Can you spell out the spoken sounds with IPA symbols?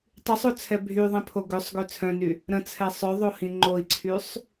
tˤ y sˤ o t͡sʰ ɛ bʱ y ðˤ ĩ pʰ o ɡ ø sˤ ɡ ø t͡sʰ œ̃ n y | ɾ ə̃ t͡sʰ ɛ sˤ œ ðˤ o h ĩ ŋ͡ǃ o i̯ ǀʰ y sˤ

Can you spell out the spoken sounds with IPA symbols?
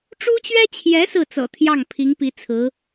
ʈ͡ʂ u˥ t͡ɕ ɥ ɛ˥ t͡ɕʰ j ɛ˧˥ s ɹ̩˥˩ t͡s ɤ̰˨˩ t̪ʰ j ɑ˥˩ ŋ pʰ i˧˥ ŋ p i˧˥ t͡sʰ ɹ̩˧˥

